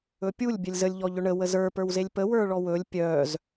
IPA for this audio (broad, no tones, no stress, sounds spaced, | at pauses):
ɵ pʲ u lʲ bʲ œ lʲ z ə lʲ ʎ ɔ ʎ ɵ ɳ ə w ə z ə˞ p ə˞ w z e lʲ p ə w ə˞ ɭ ɔ w ɵ lʲ pʲ œ z